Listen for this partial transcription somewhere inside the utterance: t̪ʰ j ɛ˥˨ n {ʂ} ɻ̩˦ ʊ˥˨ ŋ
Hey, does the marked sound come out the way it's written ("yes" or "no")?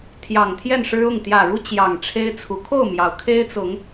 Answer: yes